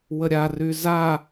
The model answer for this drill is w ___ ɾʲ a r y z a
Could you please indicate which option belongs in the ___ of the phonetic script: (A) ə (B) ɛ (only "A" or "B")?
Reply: A